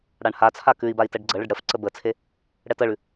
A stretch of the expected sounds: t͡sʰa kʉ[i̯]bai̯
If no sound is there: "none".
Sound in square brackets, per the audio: i̯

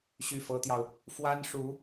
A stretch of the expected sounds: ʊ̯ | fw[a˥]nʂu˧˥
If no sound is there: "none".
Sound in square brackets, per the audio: a˥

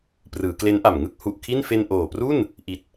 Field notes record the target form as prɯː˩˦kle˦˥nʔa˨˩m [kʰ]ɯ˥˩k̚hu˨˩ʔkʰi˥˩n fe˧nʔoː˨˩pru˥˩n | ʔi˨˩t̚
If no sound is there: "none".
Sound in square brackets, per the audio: ŋ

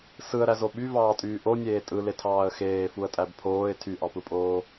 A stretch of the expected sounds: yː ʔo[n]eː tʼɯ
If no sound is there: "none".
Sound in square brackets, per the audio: nʲ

